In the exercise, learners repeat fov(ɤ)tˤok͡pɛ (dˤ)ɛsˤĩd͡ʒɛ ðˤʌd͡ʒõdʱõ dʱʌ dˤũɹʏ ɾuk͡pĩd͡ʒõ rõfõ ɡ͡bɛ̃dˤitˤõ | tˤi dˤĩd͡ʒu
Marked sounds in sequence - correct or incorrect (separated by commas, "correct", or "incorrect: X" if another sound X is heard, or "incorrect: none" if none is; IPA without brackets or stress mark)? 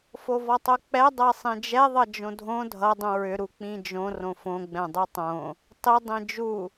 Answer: incorrect: ɔ, correct